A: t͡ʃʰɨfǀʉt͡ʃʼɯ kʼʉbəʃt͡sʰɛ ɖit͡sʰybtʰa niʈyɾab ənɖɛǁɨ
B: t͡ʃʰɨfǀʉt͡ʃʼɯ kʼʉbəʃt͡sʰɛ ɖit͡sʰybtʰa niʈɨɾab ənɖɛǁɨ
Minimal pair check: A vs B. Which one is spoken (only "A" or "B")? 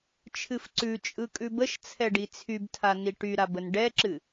A